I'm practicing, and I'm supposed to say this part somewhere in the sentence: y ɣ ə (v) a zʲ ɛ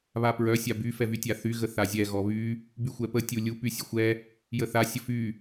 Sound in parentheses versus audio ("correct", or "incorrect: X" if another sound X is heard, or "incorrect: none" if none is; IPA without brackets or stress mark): incorrect: θ